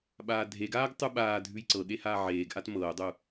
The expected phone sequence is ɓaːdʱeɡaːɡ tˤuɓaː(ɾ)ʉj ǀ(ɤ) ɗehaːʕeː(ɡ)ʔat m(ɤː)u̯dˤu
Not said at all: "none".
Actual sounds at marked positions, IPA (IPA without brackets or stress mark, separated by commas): dʱ, ɤ, ɡ, ɤː